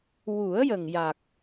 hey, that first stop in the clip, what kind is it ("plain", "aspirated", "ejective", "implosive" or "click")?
plain